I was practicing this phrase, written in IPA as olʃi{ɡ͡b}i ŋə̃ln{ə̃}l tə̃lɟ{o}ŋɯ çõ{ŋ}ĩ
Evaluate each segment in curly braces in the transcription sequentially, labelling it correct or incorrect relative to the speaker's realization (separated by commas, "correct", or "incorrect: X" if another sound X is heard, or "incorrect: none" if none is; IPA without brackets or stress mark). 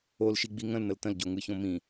correct, incorrect: ə, correct, incorrect: m